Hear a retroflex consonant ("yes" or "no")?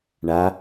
yes